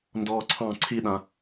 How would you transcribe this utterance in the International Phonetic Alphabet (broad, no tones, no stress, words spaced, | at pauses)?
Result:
ndɔːǀʰɑ̃ ǀʰiɗã